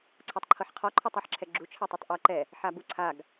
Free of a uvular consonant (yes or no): no